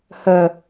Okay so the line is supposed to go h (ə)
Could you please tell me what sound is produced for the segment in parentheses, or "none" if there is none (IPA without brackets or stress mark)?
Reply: ə